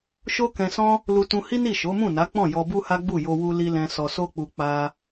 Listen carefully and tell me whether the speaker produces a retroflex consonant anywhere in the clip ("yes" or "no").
no